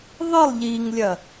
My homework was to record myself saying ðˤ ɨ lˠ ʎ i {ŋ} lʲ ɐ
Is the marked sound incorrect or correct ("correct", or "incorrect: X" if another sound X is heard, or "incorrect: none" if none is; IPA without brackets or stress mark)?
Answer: correct